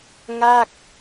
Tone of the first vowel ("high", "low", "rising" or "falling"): falling